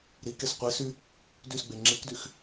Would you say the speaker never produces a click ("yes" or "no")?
no